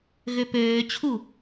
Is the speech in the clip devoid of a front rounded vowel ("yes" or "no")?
no